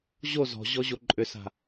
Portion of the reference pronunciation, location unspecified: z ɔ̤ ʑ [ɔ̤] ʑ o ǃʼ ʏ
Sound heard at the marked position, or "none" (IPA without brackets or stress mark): ɔ